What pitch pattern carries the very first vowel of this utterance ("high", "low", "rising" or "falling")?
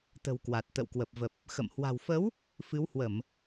low